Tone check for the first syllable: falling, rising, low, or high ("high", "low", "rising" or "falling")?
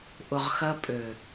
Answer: low